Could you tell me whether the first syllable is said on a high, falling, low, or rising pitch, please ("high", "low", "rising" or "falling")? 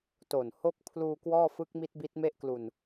low